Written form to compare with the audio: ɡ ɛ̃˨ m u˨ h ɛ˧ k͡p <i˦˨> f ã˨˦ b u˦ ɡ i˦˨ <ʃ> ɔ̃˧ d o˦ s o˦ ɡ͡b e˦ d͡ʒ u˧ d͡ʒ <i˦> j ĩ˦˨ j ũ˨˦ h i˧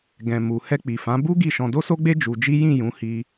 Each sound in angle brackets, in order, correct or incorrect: incorrect, correct, correct

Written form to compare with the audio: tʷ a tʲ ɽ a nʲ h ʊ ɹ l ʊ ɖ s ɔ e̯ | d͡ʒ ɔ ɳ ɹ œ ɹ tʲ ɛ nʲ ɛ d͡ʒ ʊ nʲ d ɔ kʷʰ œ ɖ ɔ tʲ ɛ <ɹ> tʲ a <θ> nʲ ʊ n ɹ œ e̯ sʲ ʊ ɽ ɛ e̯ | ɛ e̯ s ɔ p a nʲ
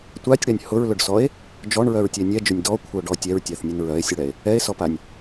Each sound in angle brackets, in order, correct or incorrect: correct, correct

